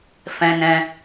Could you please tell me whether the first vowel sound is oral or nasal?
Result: nasal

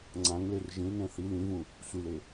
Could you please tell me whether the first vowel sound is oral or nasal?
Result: nasal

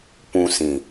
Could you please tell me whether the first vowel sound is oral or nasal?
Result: nasal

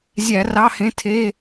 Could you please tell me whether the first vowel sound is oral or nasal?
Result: oral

